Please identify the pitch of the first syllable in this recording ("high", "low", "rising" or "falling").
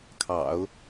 low